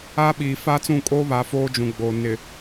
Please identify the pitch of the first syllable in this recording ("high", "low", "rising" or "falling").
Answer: high